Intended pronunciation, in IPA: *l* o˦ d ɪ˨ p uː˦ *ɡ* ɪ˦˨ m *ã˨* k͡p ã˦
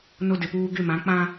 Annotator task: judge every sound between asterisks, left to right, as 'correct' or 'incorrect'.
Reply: incorrect, correct, incorrect

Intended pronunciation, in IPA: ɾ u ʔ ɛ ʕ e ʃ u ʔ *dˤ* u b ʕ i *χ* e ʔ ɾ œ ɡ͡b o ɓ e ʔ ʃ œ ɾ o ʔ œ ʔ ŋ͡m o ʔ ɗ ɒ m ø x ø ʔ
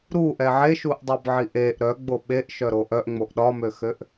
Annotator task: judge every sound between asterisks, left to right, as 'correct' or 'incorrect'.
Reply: correct, incorrect

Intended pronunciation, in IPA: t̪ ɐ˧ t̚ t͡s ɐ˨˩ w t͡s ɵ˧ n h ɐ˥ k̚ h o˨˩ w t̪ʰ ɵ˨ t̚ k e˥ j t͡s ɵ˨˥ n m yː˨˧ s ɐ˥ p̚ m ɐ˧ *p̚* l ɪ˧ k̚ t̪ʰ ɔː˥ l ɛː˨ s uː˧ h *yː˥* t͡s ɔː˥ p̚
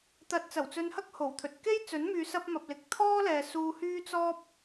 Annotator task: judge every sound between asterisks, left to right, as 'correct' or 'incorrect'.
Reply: correct, correct

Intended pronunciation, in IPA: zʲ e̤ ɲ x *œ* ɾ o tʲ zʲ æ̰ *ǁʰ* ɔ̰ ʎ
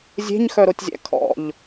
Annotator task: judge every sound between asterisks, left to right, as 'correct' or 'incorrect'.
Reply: correct, incorrect

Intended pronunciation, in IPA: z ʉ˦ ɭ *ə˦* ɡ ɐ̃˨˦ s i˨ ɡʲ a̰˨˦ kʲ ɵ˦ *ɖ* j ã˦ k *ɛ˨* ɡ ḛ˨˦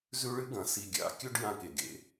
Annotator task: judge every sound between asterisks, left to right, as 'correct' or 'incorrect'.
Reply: incorrect, correct, incorrect

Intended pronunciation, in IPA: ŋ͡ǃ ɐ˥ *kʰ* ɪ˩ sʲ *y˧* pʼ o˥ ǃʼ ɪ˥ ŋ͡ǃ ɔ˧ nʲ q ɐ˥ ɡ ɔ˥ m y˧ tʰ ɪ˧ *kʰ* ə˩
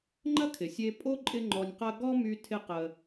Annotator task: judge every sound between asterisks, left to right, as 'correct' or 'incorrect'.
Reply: correct, incorrect, incorrect

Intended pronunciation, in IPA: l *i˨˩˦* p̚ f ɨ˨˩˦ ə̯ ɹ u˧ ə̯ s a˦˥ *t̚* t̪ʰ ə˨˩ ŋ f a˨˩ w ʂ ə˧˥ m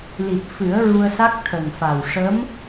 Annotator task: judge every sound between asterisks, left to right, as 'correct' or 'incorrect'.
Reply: incorrect, incorrect

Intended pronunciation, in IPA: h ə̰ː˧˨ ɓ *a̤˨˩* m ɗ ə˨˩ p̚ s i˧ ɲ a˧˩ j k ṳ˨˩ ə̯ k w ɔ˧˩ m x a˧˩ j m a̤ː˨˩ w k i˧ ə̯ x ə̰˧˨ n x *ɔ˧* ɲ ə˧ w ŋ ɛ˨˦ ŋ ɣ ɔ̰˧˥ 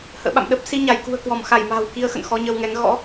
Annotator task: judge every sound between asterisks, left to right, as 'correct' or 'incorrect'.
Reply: incorrect, correct

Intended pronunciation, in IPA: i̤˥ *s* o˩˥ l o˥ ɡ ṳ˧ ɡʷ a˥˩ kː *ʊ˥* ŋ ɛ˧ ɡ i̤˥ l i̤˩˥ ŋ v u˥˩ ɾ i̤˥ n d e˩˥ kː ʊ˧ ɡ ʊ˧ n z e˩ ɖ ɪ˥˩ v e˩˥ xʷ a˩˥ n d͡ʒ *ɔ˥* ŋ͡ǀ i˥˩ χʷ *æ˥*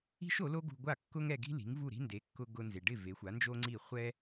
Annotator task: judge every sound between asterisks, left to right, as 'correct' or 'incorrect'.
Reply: incorrect, correct, incorrect, incorrect

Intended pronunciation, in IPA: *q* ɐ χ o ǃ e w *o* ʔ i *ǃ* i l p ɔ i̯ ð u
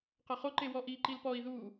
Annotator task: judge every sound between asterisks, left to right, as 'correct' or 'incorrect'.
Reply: correct, incorrect, correct

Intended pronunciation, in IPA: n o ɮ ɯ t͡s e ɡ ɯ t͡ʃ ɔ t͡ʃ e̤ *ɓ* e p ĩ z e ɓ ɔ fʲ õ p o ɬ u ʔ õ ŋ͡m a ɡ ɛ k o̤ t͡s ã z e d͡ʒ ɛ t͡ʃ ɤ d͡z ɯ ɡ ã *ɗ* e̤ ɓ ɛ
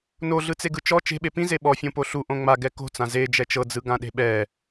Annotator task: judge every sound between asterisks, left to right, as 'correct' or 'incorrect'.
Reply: correct, correct

